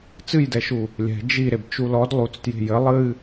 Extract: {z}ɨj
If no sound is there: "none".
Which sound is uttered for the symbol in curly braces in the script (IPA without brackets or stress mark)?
t͡s